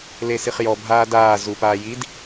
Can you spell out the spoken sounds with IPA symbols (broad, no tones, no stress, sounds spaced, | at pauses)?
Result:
l e s i χ j ɔ bʱ aː d aː z u p aː j i d